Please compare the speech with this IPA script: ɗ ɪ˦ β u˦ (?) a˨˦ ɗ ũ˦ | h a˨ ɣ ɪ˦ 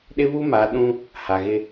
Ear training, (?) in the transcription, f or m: m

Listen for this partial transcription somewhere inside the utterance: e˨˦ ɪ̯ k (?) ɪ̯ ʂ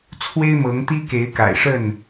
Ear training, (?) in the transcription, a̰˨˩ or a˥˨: a̰˨˩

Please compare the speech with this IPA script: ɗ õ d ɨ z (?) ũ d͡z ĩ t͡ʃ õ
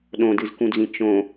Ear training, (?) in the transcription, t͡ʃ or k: k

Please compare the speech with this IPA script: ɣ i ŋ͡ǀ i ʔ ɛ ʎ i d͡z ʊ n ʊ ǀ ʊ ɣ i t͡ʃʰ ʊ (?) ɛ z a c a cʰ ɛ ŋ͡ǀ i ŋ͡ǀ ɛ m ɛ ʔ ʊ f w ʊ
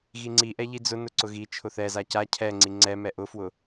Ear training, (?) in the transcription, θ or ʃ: θ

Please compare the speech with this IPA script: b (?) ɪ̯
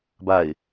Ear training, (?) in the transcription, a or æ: a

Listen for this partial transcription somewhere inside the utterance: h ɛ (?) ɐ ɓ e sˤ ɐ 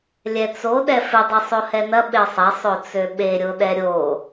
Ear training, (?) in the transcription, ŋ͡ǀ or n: n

